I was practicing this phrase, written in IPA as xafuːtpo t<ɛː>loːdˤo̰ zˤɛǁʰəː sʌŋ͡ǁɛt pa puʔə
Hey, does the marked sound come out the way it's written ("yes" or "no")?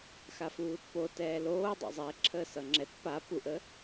yes